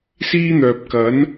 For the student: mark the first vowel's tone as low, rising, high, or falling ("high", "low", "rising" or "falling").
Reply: high